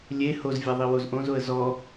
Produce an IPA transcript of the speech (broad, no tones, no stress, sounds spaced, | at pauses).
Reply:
lʲ e h o z vʲ a ðˤ i w o z ʔ õ z o ə̯ z ɔ